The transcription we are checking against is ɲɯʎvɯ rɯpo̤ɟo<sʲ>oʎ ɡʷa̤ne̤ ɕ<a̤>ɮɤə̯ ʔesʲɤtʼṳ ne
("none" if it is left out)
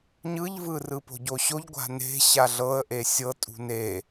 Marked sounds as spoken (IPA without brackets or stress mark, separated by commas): ɕ, a